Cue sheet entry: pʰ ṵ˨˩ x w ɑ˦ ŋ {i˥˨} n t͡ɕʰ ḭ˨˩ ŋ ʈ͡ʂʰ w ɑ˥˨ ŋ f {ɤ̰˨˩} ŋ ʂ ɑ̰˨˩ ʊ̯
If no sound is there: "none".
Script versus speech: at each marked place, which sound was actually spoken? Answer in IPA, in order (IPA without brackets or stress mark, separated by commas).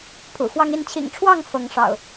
i˥˨, ɤ˨˦